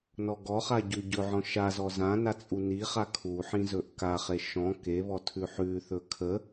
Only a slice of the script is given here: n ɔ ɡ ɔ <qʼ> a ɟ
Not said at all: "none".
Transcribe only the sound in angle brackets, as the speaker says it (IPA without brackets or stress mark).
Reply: χ